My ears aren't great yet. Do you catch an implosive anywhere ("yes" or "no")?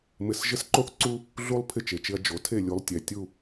no